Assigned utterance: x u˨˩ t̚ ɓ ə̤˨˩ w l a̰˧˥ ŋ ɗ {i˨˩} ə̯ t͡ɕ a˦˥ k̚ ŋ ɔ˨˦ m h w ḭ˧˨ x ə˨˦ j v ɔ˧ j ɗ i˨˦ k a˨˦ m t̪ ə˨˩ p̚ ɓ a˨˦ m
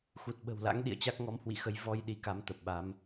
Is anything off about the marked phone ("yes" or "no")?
yes